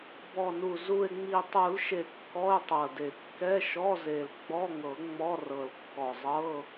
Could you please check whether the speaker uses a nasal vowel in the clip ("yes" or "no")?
no